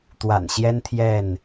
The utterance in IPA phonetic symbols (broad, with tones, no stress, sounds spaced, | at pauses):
t̪ w a̰˨˩ n ɕ j ɛ˦ n t̪ʰ j ɛ˥˨ n